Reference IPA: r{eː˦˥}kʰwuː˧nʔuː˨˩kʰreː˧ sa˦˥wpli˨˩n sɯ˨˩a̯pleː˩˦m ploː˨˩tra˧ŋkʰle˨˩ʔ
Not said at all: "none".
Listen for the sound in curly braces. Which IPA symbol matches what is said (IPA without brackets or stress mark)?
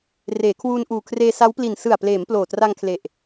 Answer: eː˩˦